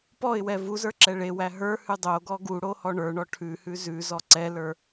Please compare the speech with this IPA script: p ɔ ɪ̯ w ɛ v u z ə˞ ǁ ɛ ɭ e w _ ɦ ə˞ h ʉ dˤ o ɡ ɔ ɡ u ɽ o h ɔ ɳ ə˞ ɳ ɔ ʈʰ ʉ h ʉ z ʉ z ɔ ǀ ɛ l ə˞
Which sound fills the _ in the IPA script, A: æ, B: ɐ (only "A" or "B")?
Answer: A